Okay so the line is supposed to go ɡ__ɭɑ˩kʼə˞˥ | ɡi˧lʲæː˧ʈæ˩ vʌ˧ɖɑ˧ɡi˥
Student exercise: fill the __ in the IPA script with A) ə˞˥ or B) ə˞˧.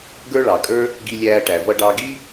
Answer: A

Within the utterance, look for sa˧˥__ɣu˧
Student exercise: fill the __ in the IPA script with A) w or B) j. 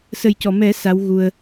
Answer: A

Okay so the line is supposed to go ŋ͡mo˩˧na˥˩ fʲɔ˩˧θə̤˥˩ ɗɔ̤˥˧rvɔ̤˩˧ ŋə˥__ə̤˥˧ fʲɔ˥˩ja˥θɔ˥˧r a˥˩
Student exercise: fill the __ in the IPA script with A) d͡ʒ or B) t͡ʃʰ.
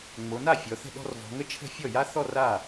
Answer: B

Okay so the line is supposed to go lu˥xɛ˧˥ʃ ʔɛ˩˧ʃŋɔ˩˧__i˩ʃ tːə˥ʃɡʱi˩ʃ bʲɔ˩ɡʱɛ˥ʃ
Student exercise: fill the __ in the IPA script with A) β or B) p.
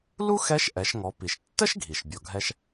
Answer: B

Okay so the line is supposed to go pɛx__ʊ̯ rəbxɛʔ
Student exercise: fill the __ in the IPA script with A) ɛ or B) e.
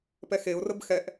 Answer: B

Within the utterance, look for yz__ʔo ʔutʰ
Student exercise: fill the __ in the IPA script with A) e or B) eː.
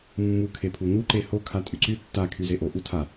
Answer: A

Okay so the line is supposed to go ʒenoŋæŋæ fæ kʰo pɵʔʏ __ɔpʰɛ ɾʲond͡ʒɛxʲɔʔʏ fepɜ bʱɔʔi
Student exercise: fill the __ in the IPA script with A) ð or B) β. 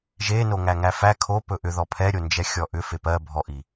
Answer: A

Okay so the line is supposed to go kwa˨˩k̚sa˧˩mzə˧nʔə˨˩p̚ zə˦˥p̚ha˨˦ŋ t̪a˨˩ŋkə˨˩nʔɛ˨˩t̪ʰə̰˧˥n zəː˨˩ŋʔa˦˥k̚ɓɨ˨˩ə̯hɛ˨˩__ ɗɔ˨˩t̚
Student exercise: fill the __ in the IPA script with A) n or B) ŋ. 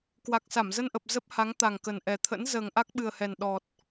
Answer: A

